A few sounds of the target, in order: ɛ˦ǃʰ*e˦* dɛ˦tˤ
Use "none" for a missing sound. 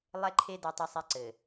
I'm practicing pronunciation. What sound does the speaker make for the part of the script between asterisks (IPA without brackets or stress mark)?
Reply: e˦